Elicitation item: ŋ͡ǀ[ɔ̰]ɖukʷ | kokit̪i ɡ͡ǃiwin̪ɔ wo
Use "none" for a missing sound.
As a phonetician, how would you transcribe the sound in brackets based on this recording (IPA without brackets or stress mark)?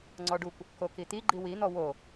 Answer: ɔ